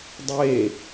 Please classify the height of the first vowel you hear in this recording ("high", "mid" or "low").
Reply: mid